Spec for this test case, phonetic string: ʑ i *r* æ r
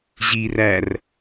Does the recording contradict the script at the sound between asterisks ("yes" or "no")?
no